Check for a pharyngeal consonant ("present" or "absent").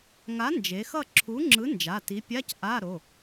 absent